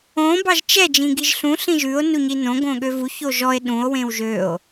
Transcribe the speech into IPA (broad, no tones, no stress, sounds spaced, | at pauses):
õ b ɑ ʒ t͡ʃ ɛ d͡ʒ ĩ ɡ i ʒ ɬ ũ ɬ ĩ ʒ ʉ o̯ n u ɲ i n õ ɡ õ ɠ ø v u ç o ʒ ɔ e̯ ɗ ũ o̯ w ẽ w ʒ ø o̯